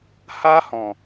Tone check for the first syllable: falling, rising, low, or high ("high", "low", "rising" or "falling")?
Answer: high